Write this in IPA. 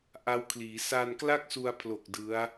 ʔ a˦˥ w kʰ l iː˩˦ s aː˧ n k l a˥˩ k̚ s u˧ a̯ pʰ l o˨˩ k̚ d ɯ˦˥ a̯

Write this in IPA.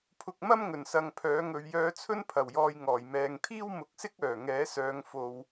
pʰ ʊ˧ k̚ m ɐ˥ m ŋ ɵ˨˩ n s ɐ˨ ŋ pʰ œː˨˥ ŋ ɵ˧ ɥ j œː˧ t͡sʰ ɵ˥ n pʰ ɐ˨˩ w j ɔː˧ j ŋ ɔː˨˩ j m ɛː˨ ŋ t̪ʰ iː˥ w m ʊ˨˥ k̚ s ɪ˥ k̚ œː˨˩ ŋ ɛː˨˥ s œː˧ ŋ f o˧ w

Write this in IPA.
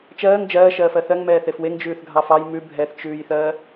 t͡ʃ ɜː ŋ d͡ʒ ɜː ʃ ɜː f ɜ θ ɜ ŋ m ɛː θ e f w e ŋ d͡ʒ ʉː θ ɡʱ ɑ f ɑ j m ʉ bʱ ɛ θ t͡ʃ ʉː j θ ɜː

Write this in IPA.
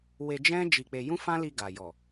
w e˧ d͡ʒ ɛ̃˦ d͡ʒ i˧ k͡p e˧ j ũ˦ f ã˦ l i˧ ɡ a˨ j ɔ˨

